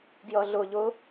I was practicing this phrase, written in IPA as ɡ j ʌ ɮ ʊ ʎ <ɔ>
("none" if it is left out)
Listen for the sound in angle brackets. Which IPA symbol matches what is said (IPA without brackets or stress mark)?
ʊ